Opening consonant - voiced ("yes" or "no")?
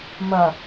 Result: yes